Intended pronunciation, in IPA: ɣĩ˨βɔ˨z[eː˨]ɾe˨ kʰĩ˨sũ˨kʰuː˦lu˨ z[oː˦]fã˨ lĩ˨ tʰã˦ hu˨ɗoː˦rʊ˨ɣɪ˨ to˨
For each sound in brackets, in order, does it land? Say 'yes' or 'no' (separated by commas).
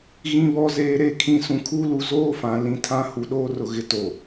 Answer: yes, yes